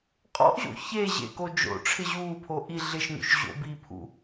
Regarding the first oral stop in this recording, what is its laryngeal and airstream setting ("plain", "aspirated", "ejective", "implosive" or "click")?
ejective